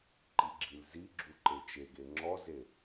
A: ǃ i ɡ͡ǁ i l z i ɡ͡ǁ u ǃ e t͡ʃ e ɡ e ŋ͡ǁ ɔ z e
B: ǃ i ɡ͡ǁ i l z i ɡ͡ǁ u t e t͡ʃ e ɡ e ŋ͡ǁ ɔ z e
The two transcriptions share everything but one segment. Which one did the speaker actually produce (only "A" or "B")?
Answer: A